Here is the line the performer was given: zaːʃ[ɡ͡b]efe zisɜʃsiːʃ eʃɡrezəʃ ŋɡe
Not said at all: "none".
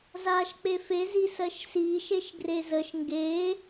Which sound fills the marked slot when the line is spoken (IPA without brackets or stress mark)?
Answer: k͡p